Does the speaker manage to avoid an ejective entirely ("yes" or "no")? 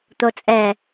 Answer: no